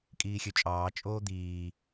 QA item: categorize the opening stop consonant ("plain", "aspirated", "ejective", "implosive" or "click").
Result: ejective